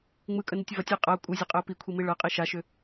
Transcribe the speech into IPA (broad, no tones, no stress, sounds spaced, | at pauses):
ŋ͡m ɯ kʼ ə n i tʲ v ɐ tʲ i qʼ ɐ ʊ̯ kʷʼ ɯ zʲ ɐ qʼ ə ʊ̯ p i kʷʰ i m i ɭ ɤ qʼ i ʃ a ʃ ʏ